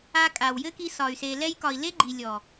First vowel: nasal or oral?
oral